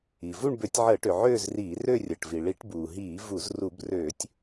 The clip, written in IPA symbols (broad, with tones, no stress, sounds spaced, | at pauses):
i˩ v u˥˧ ɳ b ø˧˩˧ tʲ ʕ əː˧˩˧ ʈ ø˩ ʕ øː˥˧ z r iː˧˩˧ r ø˥˧ rʲ əː˩ ʈ v i˩ ɭ i˧˩˧ ʈ b uː˩ ɦ iː˧˩˧ v u˧˩˧ z r u˧˩˧ b r øː˧˩˧ tʲ